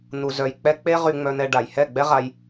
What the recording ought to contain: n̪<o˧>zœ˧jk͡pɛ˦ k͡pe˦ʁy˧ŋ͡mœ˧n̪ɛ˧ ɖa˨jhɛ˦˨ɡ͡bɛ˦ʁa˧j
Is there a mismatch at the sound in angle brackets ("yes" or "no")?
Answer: yes